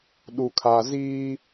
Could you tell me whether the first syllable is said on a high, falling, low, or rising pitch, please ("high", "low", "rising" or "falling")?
low